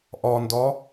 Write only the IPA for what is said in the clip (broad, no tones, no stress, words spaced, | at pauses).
ʔɒndɒ